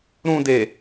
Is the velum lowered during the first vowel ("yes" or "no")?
yes